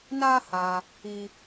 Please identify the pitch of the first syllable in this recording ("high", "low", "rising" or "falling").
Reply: high